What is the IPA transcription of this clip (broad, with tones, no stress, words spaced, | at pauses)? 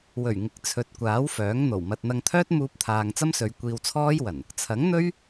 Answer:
wɵ˨˩ɥ ŋɪ˨˥k̚t͡sʰɵ˨˥t̚kʷaː˨˥wfœː˨˥ŋ n̪o˨˩wmɐ˧t̚ n̪ɐ˧ŋt̪ʰœː˥t̚muː˧p̚t̪ʰaː˨ŋ t͡sɐ˥msɵ˨˧ɥkʷiː˧wt͡sʰɔː˥j wɐ˨˩n | t͡sʰɐ˨˥ŋn̪ɵ˥ɥ